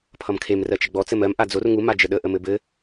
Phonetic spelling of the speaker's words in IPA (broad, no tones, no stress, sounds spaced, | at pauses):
pʰ ʌ m kʰ e m r ɜ t͡ʃ ə ɡ͡b ɔ t͡s ɘ m ɜ m ʔ a d͡z o r ŋ u m a d͡ʒ ə ɗ ə ʔ ə m ɘ b ɘ